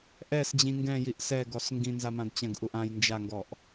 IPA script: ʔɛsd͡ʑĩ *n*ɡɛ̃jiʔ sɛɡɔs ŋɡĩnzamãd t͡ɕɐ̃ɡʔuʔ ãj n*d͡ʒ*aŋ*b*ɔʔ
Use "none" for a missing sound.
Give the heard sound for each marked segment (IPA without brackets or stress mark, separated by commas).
ŋ, d͡ʒ, ɡ